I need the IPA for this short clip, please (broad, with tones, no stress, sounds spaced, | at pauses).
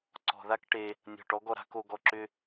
ǀ ɔ̤˨ ð a˦ k ʈ e˧ | nʲ ɔ̤˨ ʈ ɔ˧ ɡ ɔ˨ ɾ a̤˦ k o˧ ɡ ɔ˧ ǁ ʏ˦